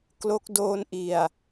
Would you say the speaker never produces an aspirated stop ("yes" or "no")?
yes